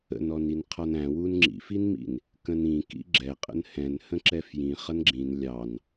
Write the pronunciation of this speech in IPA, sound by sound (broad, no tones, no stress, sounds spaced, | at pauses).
ə̰ n ɔ n i n qʰ ɒ n æ̃ w u n ŋ͡ǁ ḭ f i n m ḭ n | k ə̃ n ĩ k ḭ ɡ͡ǁ ɛ qʼ ə̰ n h ɛ̃ n h ə̃ ǁ ɛ f j ĩ χ ʌ n ɡ͡ǁ ĩ n lʲ ɑ n